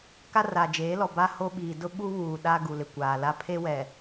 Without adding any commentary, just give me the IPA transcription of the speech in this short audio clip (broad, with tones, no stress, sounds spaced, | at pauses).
k a˦ r a˨ d͡ʒ eː˨˦ l ɔ˨ b a˦ h o˦ ɓ iː˨ d ʊ˦ ɓ u˦ β uː˨ ɗ a˦ ɡ u˨ l ɪ˨ kʷ aː˨ l a˦ pʰ e˦ w ɛ˨